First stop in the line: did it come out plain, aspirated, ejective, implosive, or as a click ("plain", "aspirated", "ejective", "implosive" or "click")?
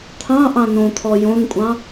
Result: aspirated